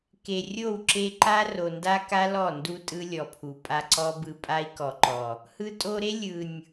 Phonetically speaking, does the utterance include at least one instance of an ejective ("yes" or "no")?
yes